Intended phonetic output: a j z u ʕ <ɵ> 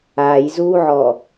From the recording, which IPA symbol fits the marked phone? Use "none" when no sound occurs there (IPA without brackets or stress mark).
ɔ